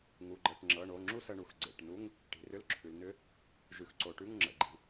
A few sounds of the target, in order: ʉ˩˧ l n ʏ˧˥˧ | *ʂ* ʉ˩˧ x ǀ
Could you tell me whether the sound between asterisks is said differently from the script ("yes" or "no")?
yes